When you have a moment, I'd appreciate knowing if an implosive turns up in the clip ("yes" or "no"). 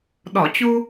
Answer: yes